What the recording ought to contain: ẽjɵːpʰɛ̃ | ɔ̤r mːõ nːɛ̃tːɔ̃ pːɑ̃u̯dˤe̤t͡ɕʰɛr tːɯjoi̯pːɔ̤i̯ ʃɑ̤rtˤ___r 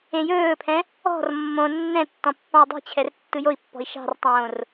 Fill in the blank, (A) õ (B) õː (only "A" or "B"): B